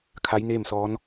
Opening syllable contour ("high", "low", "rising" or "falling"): rising